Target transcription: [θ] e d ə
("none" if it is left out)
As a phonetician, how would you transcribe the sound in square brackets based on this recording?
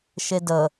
ʃ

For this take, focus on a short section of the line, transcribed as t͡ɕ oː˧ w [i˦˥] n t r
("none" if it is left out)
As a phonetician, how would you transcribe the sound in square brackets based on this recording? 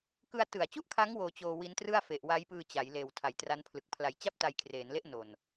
i˦˥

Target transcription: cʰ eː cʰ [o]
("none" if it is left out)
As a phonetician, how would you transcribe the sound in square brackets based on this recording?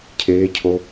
o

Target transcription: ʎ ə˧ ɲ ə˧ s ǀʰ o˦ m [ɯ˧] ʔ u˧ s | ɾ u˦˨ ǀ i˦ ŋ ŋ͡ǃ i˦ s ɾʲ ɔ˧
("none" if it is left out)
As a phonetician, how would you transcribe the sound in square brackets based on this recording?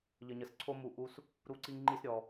u˧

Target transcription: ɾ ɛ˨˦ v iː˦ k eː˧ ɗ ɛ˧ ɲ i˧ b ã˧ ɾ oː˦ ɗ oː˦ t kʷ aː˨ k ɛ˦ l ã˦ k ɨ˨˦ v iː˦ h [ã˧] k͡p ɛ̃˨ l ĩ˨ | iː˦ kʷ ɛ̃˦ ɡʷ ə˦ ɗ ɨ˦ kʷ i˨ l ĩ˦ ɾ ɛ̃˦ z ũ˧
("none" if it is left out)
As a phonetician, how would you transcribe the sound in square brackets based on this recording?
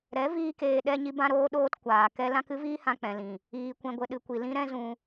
ã˧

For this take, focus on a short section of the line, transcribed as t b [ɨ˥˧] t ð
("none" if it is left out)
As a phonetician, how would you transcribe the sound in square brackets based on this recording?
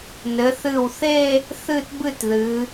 ɨ˥˧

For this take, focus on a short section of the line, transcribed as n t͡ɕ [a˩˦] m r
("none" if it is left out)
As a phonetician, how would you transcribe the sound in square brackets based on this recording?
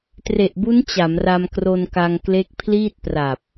a˩˦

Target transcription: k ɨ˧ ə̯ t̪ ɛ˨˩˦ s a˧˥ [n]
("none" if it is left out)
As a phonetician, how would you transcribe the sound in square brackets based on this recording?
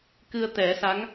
ŋ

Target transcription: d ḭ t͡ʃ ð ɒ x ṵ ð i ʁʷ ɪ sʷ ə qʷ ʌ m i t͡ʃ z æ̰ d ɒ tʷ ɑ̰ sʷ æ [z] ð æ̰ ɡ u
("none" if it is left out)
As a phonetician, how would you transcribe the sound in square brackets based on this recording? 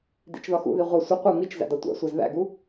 z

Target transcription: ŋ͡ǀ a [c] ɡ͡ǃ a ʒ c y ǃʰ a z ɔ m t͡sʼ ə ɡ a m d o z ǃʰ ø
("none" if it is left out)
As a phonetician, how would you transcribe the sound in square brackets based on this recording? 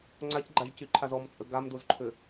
c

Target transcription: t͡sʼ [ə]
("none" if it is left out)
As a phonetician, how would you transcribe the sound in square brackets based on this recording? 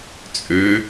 ø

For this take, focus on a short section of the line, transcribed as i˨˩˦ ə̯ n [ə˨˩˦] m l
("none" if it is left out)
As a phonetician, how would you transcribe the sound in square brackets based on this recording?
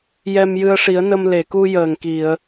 ə˧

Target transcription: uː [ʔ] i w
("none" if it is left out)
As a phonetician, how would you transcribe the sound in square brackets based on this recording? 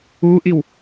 ʔ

